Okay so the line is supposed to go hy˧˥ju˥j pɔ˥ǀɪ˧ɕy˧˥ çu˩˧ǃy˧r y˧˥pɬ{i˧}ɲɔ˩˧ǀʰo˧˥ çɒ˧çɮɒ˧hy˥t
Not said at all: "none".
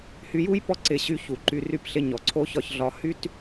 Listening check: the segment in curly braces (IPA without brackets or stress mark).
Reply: ɪ˧